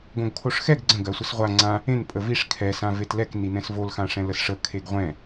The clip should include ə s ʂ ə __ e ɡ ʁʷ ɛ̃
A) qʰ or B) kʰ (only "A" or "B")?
B